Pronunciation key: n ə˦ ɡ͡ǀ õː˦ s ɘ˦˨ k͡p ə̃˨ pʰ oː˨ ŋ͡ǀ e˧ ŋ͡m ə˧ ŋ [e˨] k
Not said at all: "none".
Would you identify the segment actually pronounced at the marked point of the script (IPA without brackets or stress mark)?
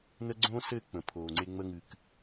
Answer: ɨ˨